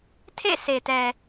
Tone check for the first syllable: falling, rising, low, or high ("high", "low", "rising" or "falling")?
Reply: falling